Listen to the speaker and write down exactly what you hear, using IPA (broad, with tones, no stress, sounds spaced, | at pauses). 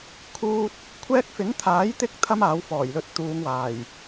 kʰ uː˥ t̚ | kʷʰ ɛː˥ k̚ f ɪ˨˥ ŋ t̪ʰ aː˨˥ j t̪ ɪ˧ k̚ t̪ʰ ɐ˥ m aː˨˥ w f ɔː˨˩ j l ɵ˧ t̚ t̪ uː˨˧ ŋ w aː˨˩ j